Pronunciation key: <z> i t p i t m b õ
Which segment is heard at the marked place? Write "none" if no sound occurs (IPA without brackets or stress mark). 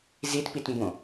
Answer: z